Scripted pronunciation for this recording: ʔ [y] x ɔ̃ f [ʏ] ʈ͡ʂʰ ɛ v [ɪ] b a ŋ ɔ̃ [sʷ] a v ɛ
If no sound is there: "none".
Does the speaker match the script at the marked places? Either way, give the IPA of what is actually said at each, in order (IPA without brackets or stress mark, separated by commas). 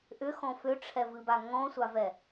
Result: ʏ, ʏ, ɨ, sʷ